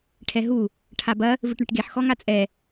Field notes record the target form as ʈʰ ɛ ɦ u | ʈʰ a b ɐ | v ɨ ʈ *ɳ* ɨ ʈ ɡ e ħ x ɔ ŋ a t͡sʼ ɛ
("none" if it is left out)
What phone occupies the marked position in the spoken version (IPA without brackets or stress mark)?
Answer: ɳ